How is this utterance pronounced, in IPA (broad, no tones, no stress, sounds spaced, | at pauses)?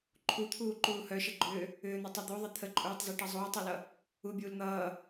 ǃʰ u t̪ʰ uː ǃ uː h œ ʃ ə ɡ͡ǃ ʏː | ʏː n̪ o tˤ ʌ d̪ u ðˤ ə t̪ʰ ə ǃʼ uː tˤ z u ʈ ʌ zˤ uː tˤ ʌ l ʌ | u bʲ uː l n̪ ʌː